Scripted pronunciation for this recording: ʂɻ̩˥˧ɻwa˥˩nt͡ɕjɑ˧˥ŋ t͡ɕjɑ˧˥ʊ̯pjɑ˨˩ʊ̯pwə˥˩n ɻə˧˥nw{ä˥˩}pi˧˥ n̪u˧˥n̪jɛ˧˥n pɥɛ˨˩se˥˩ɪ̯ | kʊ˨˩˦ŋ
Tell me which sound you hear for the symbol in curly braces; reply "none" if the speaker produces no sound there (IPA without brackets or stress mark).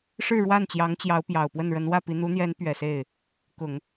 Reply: ä˥˩